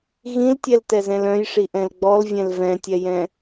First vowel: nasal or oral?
nasal